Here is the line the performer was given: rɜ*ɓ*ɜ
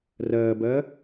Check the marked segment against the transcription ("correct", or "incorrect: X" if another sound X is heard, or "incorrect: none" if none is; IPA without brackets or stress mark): incorrect: b